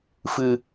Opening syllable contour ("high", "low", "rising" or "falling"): low